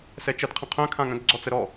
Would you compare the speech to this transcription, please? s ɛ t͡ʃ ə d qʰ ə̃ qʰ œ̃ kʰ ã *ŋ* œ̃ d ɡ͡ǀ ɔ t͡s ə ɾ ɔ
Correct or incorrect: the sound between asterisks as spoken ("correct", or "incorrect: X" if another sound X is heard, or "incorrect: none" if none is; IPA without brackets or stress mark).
correct